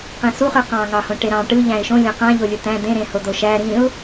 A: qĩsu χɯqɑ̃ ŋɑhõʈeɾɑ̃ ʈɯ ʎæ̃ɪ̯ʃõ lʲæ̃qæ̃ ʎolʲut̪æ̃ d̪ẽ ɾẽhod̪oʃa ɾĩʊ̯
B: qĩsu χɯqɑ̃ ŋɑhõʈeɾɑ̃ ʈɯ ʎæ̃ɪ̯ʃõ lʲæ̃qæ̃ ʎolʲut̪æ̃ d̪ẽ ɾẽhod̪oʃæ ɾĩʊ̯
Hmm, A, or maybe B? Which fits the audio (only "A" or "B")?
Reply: B